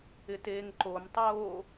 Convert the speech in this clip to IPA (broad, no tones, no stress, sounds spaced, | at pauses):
ɪ t eː ŋ ǃ o m tˤ oː